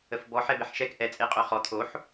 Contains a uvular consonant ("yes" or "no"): yes